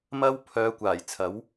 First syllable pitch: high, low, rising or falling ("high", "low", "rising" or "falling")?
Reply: high